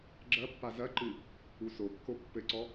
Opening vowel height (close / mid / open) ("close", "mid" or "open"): open